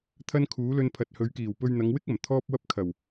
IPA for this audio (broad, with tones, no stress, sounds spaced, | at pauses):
t̪ʰ ɐ˥ n kʰ uː˨˥ l ɵ˧ n pʰ ɐ˨ t̚ h ɵ˨˧ ɥ k iː˨˩ w p ɵ˧ ɥ n̪ ɐ˨˧ ŋ w ɪ˥ k̚ ɐ˨˩ m t̪ʰ ɔː˥ p̚ w ɐ˥ p̚ kʰ ɐ˨˩ w